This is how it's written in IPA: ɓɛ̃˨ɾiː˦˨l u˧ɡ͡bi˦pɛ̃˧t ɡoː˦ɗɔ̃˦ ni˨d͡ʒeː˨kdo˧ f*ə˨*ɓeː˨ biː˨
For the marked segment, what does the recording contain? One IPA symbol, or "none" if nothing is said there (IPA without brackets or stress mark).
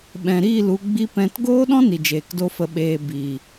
ə˨